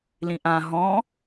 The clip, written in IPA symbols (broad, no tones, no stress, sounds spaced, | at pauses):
l ĩ ʔ ã ɦ ɔ̃